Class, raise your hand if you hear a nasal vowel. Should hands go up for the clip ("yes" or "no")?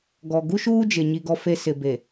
no